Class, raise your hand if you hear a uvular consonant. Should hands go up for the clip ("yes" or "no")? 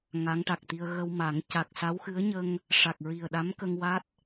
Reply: no